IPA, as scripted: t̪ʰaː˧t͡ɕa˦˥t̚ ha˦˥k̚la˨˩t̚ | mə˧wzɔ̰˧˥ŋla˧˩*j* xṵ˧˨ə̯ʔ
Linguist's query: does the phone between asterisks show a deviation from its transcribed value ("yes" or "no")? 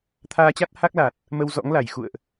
no